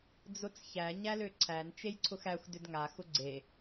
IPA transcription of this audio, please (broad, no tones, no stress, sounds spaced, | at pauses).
d͡z ʊ t͡s ç æ ɲ æ l ø ǀʰ æ n t͡ʃ e j ǀʰ ʊ x æ xʷ d ʏ d ŋ a x ʊ ɡ͡ǀ e